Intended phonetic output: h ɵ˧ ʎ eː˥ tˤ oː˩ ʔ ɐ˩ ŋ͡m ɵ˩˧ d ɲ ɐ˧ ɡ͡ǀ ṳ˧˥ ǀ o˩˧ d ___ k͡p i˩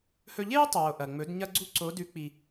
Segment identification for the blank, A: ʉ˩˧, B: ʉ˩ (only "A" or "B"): A